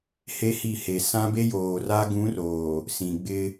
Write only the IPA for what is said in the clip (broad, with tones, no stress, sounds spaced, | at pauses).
h e˦ h i˦˨ h e˨ s ã˦ b e˦ j oː˨ r a˦ ɡ ũ˨˦ r oː˨ | s ĩ˨ ɡ͡b ɪ˦